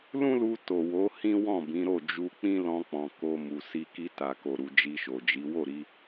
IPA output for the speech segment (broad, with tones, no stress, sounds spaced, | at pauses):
l ũ˦ l u˧ t o˨ w o˨˦ h ĩ˦ w ɔ̃˦˨ b ĩ˨˦ ɾ o˦˨ d͡ʒ u˧ k͡p ĩ˦ l ɔ̃˧ k͡p ɔ̃˨ k o˧ m u˨ s i˧ k i˧ t a˨ k o˨ ɾ u˨ d͡ʒ i˧ ʃ o˨ d͡ʒ i˨˦ w o˦˨ ɾ i˧